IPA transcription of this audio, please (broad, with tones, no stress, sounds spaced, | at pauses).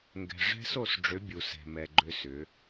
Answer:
ŋ ɡ ɛ̤˨ ʐ ɛ̤˦ s o˦˨ s ɖ͡ʐ ʏ˨˦ bʲ u˨ s ɛ̤˨ m ɛ˨ ɡ͡ǃ ʏ˦ s ʏ˨˦